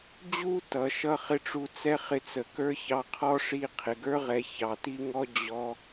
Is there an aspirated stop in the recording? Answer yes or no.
yes